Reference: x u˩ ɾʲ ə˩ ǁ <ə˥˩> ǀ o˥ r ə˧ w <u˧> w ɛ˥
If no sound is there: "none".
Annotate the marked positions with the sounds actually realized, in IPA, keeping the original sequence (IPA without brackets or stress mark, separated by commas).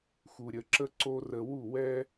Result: ə˥, u˥˩